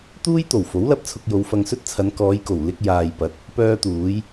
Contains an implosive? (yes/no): no